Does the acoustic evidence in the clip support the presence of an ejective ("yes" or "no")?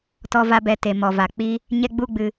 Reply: no